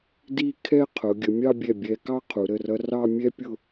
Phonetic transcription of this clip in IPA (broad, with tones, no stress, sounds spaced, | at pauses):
d i˥˧ kʰ ɛ˥ qʰ ʊ˩˧ ɡʲ ə˩˧ mʲ ɑ˥˧ bʲ ɛ˧˩ bʲ ɛ˧ k ɑ˥ qʰ u˩˧ ɾ ə˧˩ r ʌ˧ r ɑ˥˧ mʲ ɛ˥ pʲ ʊ˥˧